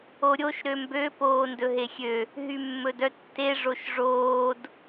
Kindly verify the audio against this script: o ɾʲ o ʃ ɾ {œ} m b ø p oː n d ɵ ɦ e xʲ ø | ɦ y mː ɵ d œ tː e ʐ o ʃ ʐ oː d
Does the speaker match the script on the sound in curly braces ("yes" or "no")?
no